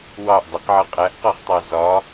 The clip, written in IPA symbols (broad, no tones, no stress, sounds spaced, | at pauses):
w ɑ ʔ dˤ ɪ q ʕ ʌ qʼ æ ʔ q ɒ χ tˤ ɑ z ɒ